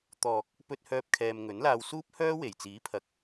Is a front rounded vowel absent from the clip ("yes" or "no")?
no